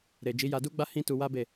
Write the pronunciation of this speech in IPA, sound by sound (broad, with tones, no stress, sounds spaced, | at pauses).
ɾ e˨ d͡ʒ i˨˦ j a˧ d u˦ ɡ͡b a˦ h ĩ˦ t u˧ w a˦ b e˦˨